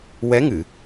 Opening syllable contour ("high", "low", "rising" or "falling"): rising